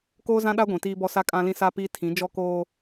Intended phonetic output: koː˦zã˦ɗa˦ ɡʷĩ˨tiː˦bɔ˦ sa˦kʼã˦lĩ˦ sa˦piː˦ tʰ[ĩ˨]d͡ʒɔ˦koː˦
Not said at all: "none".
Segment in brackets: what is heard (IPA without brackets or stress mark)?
ĩ˨˦